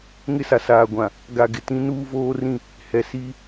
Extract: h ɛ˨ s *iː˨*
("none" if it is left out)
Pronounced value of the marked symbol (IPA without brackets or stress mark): iː˦